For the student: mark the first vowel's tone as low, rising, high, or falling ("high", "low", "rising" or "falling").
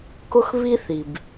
high